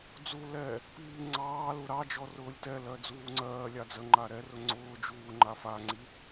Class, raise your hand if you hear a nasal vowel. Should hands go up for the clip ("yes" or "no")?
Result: no